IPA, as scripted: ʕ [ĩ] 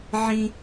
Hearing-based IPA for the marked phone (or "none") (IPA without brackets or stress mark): ĩ